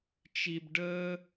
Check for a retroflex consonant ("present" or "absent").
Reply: present